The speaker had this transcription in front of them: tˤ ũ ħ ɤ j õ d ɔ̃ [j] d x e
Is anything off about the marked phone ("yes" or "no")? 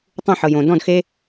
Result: yes